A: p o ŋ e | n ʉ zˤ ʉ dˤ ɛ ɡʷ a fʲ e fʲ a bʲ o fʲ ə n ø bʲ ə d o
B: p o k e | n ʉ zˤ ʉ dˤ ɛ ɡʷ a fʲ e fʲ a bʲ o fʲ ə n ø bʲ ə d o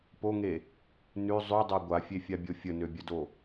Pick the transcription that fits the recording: A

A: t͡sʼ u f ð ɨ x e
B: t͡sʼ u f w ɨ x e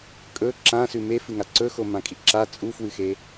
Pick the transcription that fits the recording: B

